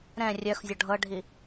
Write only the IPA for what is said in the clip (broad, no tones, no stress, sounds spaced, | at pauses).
ɾ ɛ̃ rʲ œ x zʲ ɔ ɖʱ ɤ ɖʱ i